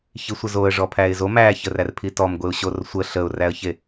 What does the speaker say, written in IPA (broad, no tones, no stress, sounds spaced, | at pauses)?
ç i sʷ ə z o ə̯ ʐ ɔ pʰ æ ɪ̯ z o m æ ç ə r æ r pʰ i t ɔ m ɡʷ e ʊ̯ ɕ o r sʷ ə ɬ ə ʊ̯ r æ ə̯ ç e